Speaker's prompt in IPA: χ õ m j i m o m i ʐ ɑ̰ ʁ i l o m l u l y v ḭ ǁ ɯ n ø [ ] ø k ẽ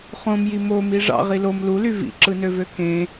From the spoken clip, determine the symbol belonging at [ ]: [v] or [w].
v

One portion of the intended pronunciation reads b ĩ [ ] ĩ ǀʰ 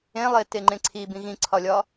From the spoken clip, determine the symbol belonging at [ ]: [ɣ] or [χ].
ɣ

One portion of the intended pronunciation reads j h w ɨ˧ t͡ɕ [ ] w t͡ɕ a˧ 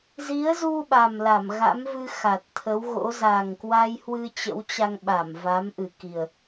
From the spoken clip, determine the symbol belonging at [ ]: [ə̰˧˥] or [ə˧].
ə̰˧˥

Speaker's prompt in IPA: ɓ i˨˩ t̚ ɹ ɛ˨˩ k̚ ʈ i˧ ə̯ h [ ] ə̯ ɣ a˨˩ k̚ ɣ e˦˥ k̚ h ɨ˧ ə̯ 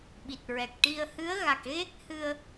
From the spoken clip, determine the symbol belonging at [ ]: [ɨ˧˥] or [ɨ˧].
ɨ˧˥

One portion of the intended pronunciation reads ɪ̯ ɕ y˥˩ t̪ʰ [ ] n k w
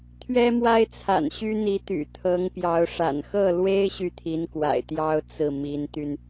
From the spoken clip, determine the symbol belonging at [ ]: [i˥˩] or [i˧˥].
i˧˥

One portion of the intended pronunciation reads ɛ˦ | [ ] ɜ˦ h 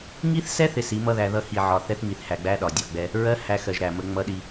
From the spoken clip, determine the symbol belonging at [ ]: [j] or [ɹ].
ɹ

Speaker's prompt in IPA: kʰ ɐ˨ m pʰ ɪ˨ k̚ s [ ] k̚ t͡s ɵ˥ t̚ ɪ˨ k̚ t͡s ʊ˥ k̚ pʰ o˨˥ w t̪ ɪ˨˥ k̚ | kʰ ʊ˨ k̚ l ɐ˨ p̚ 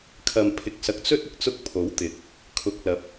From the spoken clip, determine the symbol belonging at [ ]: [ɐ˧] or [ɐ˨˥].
ɐ˨˥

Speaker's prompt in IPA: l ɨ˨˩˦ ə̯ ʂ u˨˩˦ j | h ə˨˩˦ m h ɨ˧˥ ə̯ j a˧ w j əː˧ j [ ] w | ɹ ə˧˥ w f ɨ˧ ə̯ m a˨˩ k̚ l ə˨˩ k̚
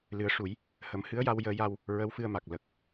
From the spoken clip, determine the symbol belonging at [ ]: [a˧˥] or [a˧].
a˧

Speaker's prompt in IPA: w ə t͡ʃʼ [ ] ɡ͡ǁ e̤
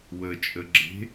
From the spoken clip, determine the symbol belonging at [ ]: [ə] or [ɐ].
ə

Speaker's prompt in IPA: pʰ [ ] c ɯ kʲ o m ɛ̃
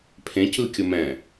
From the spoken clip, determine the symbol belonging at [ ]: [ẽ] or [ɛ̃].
ẽ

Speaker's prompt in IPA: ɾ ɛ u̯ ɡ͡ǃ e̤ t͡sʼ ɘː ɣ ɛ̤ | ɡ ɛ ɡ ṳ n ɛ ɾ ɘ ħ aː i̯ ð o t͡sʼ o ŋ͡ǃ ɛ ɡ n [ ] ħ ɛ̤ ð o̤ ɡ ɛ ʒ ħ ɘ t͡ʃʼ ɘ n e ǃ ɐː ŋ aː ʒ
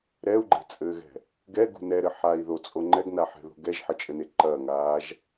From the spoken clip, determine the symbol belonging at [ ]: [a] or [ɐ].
a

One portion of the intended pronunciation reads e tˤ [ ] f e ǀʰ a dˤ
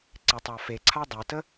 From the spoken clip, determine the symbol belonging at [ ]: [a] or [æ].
a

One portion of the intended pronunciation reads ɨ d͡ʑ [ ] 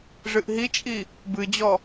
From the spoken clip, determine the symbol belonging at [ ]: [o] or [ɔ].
ɔ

